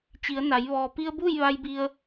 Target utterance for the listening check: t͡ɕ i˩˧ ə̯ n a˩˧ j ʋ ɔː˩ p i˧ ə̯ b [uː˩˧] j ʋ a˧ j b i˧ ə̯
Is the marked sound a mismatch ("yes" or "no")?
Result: yes